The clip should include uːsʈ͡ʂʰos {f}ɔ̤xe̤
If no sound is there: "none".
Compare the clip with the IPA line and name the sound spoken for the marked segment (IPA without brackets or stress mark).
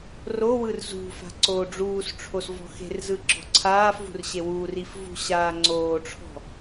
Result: v